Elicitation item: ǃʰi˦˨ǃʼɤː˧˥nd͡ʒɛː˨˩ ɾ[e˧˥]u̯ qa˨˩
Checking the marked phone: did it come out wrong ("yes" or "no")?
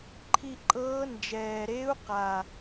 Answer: no